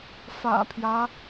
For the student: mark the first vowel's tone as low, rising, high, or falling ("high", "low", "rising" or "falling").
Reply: low